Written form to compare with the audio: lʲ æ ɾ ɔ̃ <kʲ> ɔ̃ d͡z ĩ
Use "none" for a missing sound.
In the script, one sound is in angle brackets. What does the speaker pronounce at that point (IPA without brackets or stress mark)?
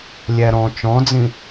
t͡ʃ